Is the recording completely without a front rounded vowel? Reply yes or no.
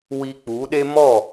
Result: yes